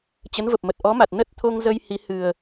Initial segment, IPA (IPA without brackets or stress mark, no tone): t͡ɕ